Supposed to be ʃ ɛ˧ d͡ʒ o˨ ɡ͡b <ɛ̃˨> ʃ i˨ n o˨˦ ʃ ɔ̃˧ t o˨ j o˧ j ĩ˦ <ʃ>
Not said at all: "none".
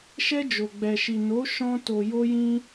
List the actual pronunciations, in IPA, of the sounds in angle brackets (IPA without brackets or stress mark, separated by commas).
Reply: ɛ˨, none